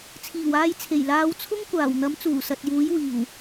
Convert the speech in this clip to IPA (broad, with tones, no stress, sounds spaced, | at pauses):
t͡sʰ iː˨˩ w aː˧ j t͡sʰ e˨˩ j l aː˨˧ w t͡sʰ ʊ˥ ŋ kʷ aː˨˩ w n̪ ɐ˨˥ m t͡s uː˨˩ s ɐ˨ t̚ j uː˨˥ j w iː˨˩ w